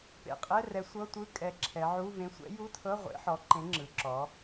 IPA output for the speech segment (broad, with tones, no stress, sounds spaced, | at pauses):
p ḛ˨˩ qʼ ɛ˧˥˧ r ɛ˨˥ sʷ ɤ˧˥˧ tʷ ɯ˧˥˧ kʼ ɛ˨˥ ǁʰ ɛ˩˧ ʕ u˧˥˧ v ẽ˨˥ sʷ ɛ̰˨˥ j u˧˥˧ tʰ ɤ˧˥˧ ʁʷ ḛ˨˥ ħ ɔ˨˥ ǃ ẽ˨˥ ŋ͡ǁ ɯ˩˧ ǁ ɔ˩˧